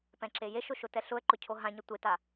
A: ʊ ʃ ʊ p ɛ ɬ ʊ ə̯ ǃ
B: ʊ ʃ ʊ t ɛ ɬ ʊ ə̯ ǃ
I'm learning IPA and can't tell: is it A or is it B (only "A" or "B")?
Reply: B